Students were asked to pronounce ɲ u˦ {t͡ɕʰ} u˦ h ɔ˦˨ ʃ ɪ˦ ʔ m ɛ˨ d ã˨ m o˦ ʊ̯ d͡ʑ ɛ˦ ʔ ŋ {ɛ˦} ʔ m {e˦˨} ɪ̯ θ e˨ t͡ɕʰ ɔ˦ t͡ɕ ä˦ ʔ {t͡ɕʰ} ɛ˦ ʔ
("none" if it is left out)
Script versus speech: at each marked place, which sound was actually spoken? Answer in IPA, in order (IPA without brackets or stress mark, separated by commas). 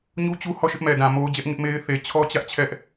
t͡ɕ, ɪ˦, e˦, t͡ɕʰ